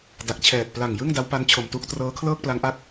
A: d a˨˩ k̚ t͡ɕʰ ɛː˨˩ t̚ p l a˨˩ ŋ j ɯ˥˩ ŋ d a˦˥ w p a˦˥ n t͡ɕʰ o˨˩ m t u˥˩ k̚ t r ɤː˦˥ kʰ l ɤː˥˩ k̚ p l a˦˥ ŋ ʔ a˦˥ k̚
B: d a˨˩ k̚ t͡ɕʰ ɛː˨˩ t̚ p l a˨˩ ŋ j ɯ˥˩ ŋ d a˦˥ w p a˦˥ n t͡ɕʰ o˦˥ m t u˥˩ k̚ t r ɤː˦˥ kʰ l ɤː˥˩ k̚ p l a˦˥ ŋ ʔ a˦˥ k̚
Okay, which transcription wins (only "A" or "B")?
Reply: A